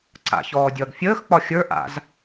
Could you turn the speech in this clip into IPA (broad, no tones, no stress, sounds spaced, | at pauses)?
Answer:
ǀ a̰ ç ɔː dʲ ʌː ɡ fʲ əː x k͡p ɒ xʲ ə˞ ʔ a̰ z